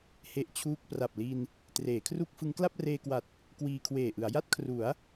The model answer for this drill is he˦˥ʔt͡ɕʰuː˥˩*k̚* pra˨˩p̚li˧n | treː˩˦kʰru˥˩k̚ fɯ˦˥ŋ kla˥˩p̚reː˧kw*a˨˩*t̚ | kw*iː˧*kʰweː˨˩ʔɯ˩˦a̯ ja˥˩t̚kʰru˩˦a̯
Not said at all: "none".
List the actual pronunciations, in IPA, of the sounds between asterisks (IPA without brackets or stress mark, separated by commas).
k̚, a˨˩, iː˧